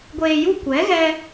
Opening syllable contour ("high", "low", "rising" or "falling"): low